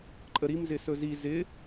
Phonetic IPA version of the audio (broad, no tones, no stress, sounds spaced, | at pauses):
ǃʼ ə ɾ i m z ɪ s ɵ z i z ɪ